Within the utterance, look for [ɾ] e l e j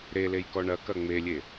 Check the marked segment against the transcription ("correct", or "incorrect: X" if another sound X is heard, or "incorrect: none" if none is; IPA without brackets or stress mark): correct